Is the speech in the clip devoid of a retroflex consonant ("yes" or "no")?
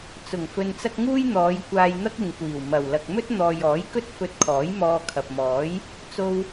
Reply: yes